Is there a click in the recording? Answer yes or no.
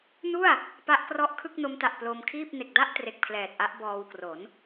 no